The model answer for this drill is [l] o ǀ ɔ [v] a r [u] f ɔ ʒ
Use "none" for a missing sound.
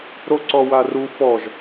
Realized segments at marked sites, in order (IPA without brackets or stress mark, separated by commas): ɾ, w, u